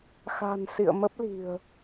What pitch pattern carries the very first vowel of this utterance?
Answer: low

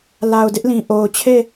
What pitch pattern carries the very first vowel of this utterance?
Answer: low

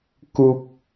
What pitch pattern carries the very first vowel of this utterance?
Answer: low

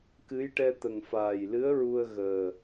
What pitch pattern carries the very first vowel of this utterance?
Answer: rising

